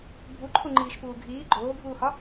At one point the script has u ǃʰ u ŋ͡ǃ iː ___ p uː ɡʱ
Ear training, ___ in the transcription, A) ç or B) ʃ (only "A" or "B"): B